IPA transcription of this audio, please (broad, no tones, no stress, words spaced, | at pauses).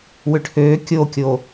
wʏʈʰøː kʲokʲo